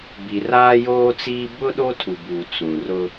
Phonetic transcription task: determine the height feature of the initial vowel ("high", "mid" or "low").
high